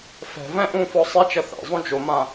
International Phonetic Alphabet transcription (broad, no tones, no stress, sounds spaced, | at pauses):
f ɛ̤ v ɛ̃ ʔ ũ f ɔ sˤ e t͡ʃ ɐ θ ɛ̰ zˤ ũ d͡ʒ o m ã